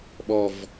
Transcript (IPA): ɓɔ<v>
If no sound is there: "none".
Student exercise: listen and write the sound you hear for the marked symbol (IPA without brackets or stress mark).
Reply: v